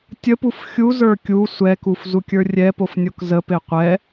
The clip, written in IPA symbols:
tʲəpuf xʲuzə˞ kʲu sʷɛkuf zukʲə˞rʲɛpof nʲokzəpe qʷɛ

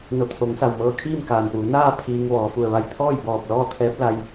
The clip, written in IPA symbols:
no˧˩t̪ʰo˩˧ŋsa˩w mɤː˧kʰiː˥˨mkaː˩npuː˩˧ naː˥˨ pʰiː˧ŋʋɔː˩˧ fu˩ə̯ʋa˧˩j t̪ʰɔː˥˨jbɔː˧˩p̚ lɔː˥˨t̪ʰɛː˧˥p̚ la˧j

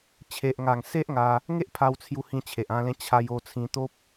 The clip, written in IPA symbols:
t͡ɕʰe˨ʔŋa˨˩ŋ se˦ʔŋa˧ | ŋe˦ʔpʰa˧wt͡sʰju˧hĩ˧ t͡ɕʰe˨ʔã˧lẽ˧ t͡ɕʰa˧j o˧t͡sʰĩ˧t̪o˦p̚

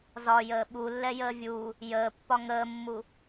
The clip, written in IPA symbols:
zɒjəː ɓulːɛjəː vʲuː | jəːpːɒ ŋəːmːu

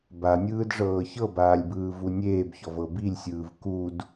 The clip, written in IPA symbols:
banʲɯːdʐɤː çɤbaːlʲbɯː vunʲeːbçɔv ɤbilʲsʲɯːv kud

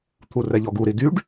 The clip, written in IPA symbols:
t̪ʰurɛʎɔɡu ɾidyɖ

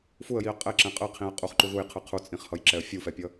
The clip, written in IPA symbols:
fuə̯jiə̯ qʼɛǁɛ̃ qʼɯqʰĩə̯ qʼuχǃu ðujqʰɯ qʰut͡sʼĩχhʌjǁɛə̯ fʲufɛpʲʌ

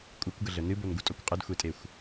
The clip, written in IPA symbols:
kʷʼɨkʷɡəɮə nɨbonɡutʼokʷ qʼədxʷetʼexʷ

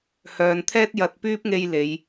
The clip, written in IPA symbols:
hœː˧n t̪ʰɛː˥t̚jɐ˨t̚pyː˥p̚ŋe˧j le˨˧j

